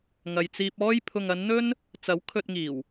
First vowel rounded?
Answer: no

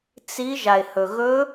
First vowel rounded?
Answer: no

